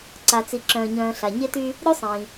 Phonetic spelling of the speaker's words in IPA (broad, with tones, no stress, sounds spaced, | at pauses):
ǀ a˩ t͡s i˩ ǁ œ̃ː˩ ɲ œ̃ː˩ ɬ a˩ ɲ e˧ t y˧ | ɾʲ u˧ sˤ ĩː˩